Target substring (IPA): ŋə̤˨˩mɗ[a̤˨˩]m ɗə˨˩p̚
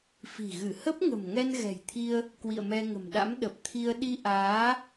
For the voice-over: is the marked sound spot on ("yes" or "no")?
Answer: no